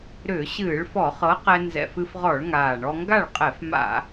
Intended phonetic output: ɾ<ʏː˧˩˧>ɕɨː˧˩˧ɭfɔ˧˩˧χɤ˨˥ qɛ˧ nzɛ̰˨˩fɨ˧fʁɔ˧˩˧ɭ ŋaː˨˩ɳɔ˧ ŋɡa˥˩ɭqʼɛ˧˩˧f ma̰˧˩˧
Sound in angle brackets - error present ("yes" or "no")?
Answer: no